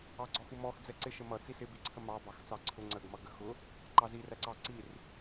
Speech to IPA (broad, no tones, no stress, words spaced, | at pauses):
ɑɡ͡ǀɔxumɔx d͡zɛǀɪʃə mʌ t͡sisɪbiǀʰə mɑbɑx t͡sɑǀʰʊ ŋ͡ǀəɡ mʌɡəxʊ | ǃɑziræǀɑ ǀir